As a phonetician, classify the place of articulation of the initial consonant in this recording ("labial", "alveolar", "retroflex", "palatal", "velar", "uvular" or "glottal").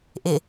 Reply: glottal